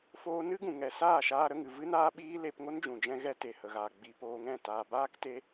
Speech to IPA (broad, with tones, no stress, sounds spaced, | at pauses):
f oː˧ n ɨ˦ ɡ ũ˨ ŋ ɛ˨ s aː˦˨ ʃ aː˧ ɾ ə˧ ŋ ɨ˨ v ɨ˦ n aː˦ ɓ iː˦ l e˧ p ŋ o˦ n d͡ʒ ũ˨ d͡ʒ ɛ̃˧ ɣ ɛ˧ t e˨ h ə˨ ɣ aː˨ ɡ͡b i˧ p oː˧ ŋ ɛ̃˦˨ t aː˨ b aː˦ k t e˧